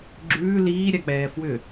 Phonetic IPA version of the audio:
ɡ͡ǁ ʉː l iː ɾʲ a k͡p ɛː f w ʏ

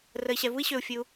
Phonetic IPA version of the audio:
r ə˧ i̯ ɕ ɛ˧ v u˥ i̯ ɕ ø˧ u̯ fʲ ɨ˧ u̯

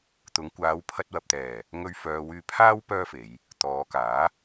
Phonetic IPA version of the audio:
t̪ ʊ˨˧ ŋ kʷ aː˨˧ w pʰ ɐ˧ t̚ w ɐ˨ p̚ t̪ ɛː˨˩ | ŋ ɵ˧ ɥ f œː˨ w yː˧ pʰ aː˥ w p œː˥ f e˨˧ j | t̪ ɔː˨˧ k aː˨˥

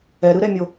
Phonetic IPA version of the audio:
ɛ ɾ ɯ ɾ ɛ mʲ o

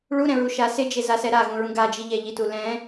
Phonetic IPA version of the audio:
ɭ u ɾ ɛ̃ ɹ u ʃ a s ɪ d͡ʒ e z a s ɛ ɾ a ɣ ũ ɹ ũ ɡ a d͡ʒ i ʎ ɛ ʎ i t u l ɛ̃

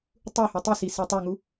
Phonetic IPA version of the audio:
tˤ u h e tˤ i s i s e tˤ u ŋ u

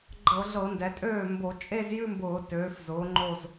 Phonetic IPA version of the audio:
ɡ͡ǃ ɤ˧˩˧ ɮ ɤ˧˩˧ n d ɛ˩˧ tʼ øː˥˩ m b o˧˩˧ t͡ʃʼ e˥˧ z j ʉ˥˧ m b ʊː˧˩˧ t øː˩˧ f z ʊː˩˧ ŋ͡ǃ o˧˩ z

